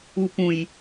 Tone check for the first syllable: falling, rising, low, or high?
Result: low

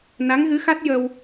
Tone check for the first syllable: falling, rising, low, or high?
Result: rising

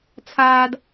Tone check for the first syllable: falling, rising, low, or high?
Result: high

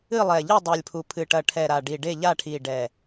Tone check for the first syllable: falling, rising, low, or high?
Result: falling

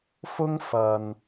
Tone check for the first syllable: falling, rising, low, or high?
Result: high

